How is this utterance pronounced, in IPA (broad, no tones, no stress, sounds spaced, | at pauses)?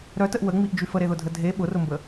ɾ œ t ə ʔ w ə ŋ͡m i ʔ d͡ʒ y f ə ɾ e ð ʊ dʱ ə dʱ e ɓ ʊ r ʊ m b ə